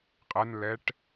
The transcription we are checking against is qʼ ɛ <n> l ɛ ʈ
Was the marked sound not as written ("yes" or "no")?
no